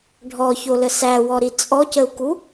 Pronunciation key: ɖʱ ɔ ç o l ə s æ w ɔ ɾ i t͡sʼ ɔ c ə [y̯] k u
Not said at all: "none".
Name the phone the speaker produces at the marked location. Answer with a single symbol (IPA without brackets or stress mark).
u̯